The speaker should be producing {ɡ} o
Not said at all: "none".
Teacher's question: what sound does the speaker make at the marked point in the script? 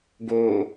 ɡ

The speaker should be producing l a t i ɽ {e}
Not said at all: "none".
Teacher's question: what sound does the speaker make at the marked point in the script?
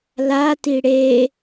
e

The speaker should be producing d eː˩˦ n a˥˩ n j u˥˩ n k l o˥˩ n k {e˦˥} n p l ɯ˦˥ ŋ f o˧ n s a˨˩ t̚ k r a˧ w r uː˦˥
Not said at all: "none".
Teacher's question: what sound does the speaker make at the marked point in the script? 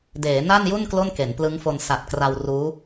e˩˦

